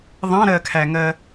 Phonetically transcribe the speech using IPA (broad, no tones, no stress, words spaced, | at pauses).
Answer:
ðˤɑ̃ɾɜkʰæŋɜ